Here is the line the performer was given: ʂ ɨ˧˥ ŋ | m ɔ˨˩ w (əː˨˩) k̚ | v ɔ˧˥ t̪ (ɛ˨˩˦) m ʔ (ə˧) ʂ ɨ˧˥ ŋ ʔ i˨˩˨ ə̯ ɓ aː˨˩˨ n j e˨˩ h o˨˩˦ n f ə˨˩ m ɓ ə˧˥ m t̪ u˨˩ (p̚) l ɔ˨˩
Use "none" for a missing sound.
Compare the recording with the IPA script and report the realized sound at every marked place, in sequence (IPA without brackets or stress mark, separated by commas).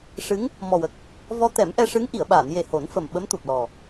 ə˨˩, ɛ˨˩˦, ɛ˧, p̚